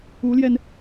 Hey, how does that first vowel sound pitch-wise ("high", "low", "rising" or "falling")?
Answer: rising